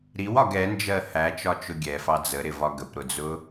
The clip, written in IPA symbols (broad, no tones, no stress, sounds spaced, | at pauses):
ɾ i w ɒ ɡ ɛ n d͡ʒ ɜ h æ t͡ʃ ɒ t͡ʃ ʊ ɡʲ ɛ f ɑ d͡z ə ɾ ɪ v ɒ ɡ ə p ɾ ʊ d͡z ʊ